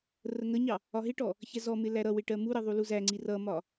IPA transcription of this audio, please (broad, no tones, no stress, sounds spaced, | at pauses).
r ə ŋ ə ɲ ɑ | ɒ ɦ ɪ ʈ ɔ | ç ɛ z ɔ m ɪ l æ ɾ ʌ w ɪ ʈ ɜ m u ɾ ə ðˤ u l u z æ ŋ͡ǀ i r ʌ m ɒ